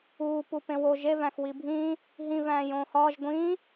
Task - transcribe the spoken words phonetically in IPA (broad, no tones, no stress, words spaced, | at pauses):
uː pupẽwo ʒevæ̃x wibʱĩː | ɦĩvæ̃ː jõːhɒːʒ ɡʷĩː